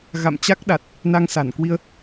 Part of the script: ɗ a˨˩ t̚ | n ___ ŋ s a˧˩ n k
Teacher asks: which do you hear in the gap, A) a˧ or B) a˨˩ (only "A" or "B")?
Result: A